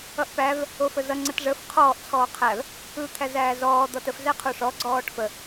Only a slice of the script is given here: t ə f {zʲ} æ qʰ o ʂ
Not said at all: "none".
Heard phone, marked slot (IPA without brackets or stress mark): z